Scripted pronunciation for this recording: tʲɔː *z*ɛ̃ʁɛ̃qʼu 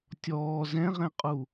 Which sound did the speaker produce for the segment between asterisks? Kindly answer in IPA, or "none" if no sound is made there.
z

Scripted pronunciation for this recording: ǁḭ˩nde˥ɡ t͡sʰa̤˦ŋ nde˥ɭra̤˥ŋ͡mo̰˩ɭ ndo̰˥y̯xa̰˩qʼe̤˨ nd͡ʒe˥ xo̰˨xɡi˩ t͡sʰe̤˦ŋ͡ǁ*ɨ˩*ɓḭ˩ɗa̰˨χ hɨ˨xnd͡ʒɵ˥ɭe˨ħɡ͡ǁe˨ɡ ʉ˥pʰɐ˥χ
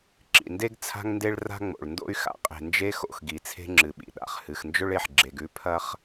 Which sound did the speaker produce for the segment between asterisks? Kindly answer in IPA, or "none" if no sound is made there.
ɨ˩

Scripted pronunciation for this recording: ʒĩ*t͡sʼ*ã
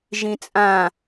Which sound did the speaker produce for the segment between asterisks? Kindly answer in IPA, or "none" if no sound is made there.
t͡sʼ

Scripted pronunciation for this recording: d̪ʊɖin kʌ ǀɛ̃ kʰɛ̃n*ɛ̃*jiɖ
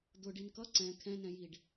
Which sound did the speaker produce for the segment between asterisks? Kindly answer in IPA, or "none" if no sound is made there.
ɛ̃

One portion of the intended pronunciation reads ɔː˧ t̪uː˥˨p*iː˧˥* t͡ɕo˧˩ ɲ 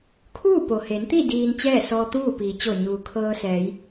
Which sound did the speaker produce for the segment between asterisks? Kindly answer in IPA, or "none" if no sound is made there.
iː˩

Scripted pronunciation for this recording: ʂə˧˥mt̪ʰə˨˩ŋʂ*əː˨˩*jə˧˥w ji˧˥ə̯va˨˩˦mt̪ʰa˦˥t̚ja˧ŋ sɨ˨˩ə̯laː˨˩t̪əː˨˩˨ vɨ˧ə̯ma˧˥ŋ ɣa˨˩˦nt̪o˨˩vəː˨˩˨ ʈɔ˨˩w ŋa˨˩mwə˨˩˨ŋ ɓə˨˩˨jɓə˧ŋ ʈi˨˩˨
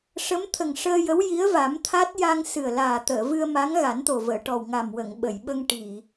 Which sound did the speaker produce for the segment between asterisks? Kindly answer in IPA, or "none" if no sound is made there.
əː˧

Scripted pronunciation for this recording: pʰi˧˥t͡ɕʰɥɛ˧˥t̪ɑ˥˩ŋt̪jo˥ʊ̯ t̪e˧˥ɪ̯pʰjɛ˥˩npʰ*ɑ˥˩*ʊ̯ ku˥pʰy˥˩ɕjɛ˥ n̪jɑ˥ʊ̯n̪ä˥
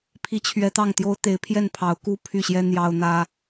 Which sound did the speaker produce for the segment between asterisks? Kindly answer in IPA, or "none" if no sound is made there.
ɑ˧˥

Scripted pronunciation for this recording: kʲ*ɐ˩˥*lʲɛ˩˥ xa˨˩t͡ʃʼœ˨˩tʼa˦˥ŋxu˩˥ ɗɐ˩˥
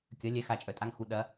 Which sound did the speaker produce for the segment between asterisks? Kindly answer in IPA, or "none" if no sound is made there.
ɐ˩˥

